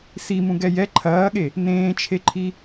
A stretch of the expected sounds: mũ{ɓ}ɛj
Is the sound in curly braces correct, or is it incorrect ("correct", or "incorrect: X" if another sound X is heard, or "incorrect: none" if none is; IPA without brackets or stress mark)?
incorrect: ɡ